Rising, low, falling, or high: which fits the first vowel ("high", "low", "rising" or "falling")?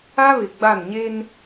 high